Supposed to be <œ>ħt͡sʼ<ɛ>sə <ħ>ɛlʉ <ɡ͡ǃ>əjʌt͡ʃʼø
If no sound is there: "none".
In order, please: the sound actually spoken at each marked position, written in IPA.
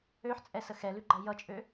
ø, ɛ, x, ɡ͡ǃ

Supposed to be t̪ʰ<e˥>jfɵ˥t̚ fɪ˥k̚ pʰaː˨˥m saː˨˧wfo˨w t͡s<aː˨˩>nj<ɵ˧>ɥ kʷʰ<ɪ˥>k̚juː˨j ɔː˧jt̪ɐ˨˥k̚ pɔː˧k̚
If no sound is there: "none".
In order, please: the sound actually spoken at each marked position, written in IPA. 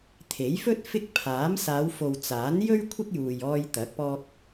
e˨˥, aː˨˥, ɵ˥, ɪ˥

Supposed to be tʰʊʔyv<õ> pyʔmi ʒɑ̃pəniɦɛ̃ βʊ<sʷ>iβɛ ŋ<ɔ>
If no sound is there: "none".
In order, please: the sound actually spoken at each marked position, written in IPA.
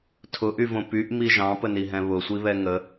õ, sʷ, ə

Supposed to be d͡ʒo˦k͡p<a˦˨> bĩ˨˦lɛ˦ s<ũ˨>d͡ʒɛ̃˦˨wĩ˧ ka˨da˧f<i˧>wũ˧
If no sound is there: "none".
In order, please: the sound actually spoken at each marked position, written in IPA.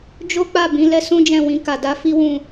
a˦˨, ũ˦, i˦

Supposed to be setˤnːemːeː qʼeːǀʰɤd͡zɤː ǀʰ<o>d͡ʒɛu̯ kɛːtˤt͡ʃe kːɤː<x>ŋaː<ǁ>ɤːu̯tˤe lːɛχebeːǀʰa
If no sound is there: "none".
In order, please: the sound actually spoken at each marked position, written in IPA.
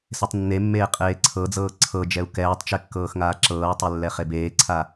ɤ, x, ǁ

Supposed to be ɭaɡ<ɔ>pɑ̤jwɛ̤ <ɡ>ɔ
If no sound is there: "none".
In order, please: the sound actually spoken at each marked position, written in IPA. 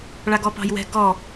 ɔ, ɡ

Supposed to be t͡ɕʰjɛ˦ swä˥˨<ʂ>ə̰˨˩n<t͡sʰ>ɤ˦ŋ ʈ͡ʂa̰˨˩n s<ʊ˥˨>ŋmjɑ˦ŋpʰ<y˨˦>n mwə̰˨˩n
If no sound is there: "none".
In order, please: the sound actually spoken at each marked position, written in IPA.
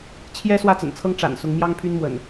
t͡s, t͡sʰ, ʊ˨˦, y˦

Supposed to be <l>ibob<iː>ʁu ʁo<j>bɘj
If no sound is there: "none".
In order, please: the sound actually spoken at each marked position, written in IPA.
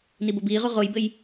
n, iː, j

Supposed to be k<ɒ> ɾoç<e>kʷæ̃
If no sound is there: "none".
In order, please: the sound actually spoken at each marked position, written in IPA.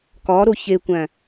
ɒ, e

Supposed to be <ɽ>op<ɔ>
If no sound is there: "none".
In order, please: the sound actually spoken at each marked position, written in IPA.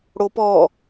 ɽ, ɔ

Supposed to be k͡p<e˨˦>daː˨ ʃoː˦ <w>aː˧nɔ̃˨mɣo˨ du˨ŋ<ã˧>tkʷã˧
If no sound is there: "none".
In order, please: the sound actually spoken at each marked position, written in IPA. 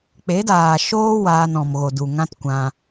e˨˦, w, ã˦

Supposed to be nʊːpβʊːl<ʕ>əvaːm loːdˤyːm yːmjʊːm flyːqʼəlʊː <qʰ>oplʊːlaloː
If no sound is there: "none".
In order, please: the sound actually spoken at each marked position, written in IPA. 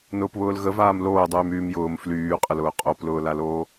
ɣ, qʼ

